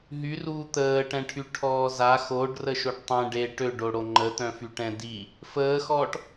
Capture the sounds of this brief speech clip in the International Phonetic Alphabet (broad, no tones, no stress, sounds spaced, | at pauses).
ɦ y r uː t̪ əː ʈ ɛ̃ ʈʰ y ʈʰ ɔː z a x o ɖ r ə ʃ o ɖ tˤ ɛ̃ ɖ e ʈ ø ɖ o ɽ o ŋ͡ǃ ə t̪ œ̃ f y ʈ ɛ̃ d i | f əː x ɔː ʈ